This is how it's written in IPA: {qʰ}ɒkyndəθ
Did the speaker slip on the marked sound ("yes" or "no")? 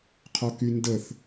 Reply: no